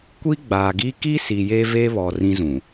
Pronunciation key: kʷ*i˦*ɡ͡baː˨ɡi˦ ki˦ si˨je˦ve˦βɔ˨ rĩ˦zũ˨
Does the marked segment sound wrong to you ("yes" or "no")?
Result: no